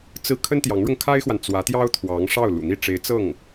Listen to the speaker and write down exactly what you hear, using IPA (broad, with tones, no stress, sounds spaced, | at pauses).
t͡s ɹ̩˥˩ kʰ ə˥ n t̪ j ɑ˧˥ ŋ ɻ ʊ˧ ŋ kʰ a˥ ɪ̯ x w a˨ n t͡s w ä˧˥ t̪ j ɑ˥ ʊ̯ t̪ʰ w ɑ˧˥ ŋ ʂ ɑ˥˩ ʊ̯ l ṵ˨˩ n̪ i˥˩ ʈ͡ʂ e˧˥ ɪ̯ t͡s ɤ˥˩ ŋ